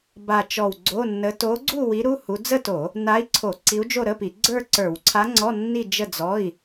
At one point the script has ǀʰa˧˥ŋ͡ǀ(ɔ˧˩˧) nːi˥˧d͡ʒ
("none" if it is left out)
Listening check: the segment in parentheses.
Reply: ɔ˧˥˧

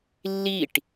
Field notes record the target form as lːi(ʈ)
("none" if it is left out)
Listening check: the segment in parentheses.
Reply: ʈ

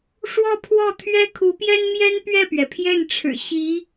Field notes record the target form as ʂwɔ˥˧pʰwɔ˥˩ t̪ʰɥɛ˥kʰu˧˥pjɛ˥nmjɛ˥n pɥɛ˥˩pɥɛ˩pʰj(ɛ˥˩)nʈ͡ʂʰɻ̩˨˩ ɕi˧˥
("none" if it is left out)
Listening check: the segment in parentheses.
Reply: ɛ˥˩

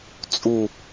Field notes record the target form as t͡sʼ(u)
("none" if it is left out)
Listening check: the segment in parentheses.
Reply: u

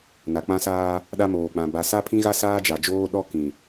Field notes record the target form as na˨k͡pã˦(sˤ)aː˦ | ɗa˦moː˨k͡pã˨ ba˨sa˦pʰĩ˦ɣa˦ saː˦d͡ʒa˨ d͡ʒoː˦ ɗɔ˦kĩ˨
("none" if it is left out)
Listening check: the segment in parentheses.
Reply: s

